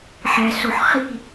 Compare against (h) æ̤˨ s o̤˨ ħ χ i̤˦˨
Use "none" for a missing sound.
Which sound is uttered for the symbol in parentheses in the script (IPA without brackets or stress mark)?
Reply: ħ